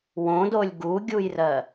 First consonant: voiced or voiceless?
voiced